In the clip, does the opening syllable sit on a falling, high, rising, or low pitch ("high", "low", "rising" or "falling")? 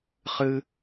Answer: high